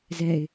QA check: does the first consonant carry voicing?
yes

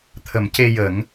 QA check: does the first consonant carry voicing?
no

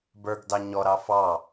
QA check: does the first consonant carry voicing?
yes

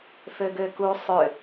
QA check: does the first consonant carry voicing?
no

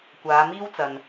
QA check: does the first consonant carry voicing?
no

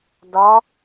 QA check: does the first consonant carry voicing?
yes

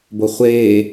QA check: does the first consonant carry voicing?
yes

